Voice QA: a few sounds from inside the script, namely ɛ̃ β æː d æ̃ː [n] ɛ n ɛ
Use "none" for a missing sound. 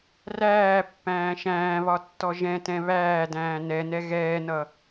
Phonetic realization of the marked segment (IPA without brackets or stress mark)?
n